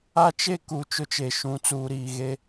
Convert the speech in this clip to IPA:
a˦t͡ʃe˦ kuː˨t͡ʃʊ˦t͡ʃe˨ʃũ˨˦ t͡suː˨ɾiː˨ɣe˦

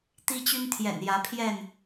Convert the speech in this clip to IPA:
t̪i˦t͡ɕy˦nt̪ʰjɛ̰˨˩n jä˨˦pʰjɛ˥˨n

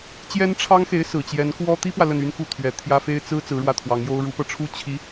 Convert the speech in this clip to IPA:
t͡ɕjɛ˥nʈ͡ʂʰɑ˥ŋxe˧˥ɪ̯ sɹ̩˨˩t͡ɕjɛ˧˥n kwɔ˥ t̪i˥pwä˨ lə˥˩ny˥nku˥˩t̪ʰɥɛ˨˩ t̪ʰjä˥fe˥ɪ̯ t͡sɹ̩˥ t͡sɹ̩˧˥ɻwä˥˩t̪ʰwɑ˧˥ŋjo˥ʊ̯ ɻu˧˥pɤ˧ʈ͡ʂʰu˥ t͡ɕʰi˧˥

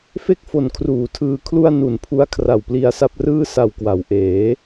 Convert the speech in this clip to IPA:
fe˥˩k̚fo˨˩n kʰruː˨˩tʰɯː˧kʰlu˥˩a̯ nu˨˩npʰu˦˥a̯ kʰra˨˩wpli˧a̯sa˥˩p̚rɯː˥˩ sa˨˩w kwa˩˦wʔeː˩˦

